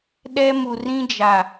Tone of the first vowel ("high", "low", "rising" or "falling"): high